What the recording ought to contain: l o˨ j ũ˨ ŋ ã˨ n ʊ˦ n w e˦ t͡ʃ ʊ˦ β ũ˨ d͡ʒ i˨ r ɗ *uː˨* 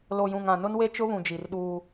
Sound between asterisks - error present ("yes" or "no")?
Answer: yes